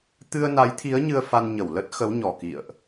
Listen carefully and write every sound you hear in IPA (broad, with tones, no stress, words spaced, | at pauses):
t̪ɨ˧ə̯na˨˦jt̪ʰi˨˦ə̯ ɲɨ˧ə̯fa˧n ɲə˧˩wlə˦˥t̚ xə˨˦wɲɔ˨˩ kḭ˧˨ə̯ʔ